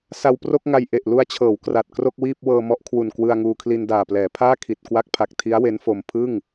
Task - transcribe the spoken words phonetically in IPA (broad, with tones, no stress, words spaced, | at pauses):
sa˧wpro˥˩k̚ ŋa˧j ʔe˨˩ʔ lu˧a̯t͡ɕʰɤː˩˦w kra˨˩t̚kro˥˩k̚wiː˥˩p̚ wɤː˧mɔ˦˥ʔkʰwu˨˩n kwɯ˧a̯ŋuː˧kʰli˧n daː˨˩plɛː˩˦pʰaː˥˩kʰi˨˩t̚ kwa˦˥k̚pʰa˨˩k̚tʰi˦˥a̯ we˦˥nfo˧m pʰɯ˥˩ŋ